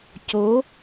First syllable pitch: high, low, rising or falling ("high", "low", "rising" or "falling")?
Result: rising